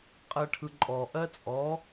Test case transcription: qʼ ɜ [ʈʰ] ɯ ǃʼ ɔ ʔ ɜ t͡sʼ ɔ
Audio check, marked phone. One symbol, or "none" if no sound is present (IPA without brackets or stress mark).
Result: ʈʰ